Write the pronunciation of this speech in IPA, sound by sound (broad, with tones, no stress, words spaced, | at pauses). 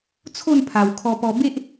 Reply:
t͡sʰo˥˧npʰa˨˩w kʰɔ˧pɔ˧ be˦ʔ